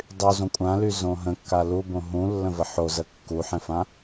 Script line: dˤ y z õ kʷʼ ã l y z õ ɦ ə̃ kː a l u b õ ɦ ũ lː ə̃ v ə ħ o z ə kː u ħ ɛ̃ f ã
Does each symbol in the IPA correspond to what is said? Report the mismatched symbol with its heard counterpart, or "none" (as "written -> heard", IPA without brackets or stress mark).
none